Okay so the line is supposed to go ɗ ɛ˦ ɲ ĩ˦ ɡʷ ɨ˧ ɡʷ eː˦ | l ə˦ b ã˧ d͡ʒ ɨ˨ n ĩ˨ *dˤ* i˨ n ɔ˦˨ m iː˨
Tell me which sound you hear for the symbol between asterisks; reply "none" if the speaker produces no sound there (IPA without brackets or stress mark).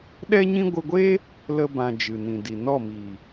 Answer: d